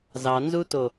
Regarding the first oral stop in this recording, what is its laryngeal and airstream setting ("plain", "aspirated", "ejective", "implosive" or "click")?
plain